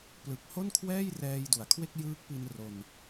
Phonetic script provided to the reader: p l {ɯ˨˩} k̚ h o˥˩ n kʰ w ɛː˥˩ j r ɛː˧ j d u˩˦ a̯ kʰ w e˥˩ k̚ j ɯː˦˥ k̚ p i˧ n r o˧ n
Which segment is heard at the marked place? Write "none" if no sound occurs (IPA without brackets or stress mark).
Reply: ɯ˨˩